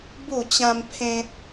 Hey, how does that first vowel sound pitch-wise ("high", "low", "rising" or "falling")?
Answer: falling